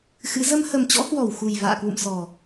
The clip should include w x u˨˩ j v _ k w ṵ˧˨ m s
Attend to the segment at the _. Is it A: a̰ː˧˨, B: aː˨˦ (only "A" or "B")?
A